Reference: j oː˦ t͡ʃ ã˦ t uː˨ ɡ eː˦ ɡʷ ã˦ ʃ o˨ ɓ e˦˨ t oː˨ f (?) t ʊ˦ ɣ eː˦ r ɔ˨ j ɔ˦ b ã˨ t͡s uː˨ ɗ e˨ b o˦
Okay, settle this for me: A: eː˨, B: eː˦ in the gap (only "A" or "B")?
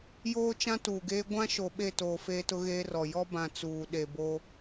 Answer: B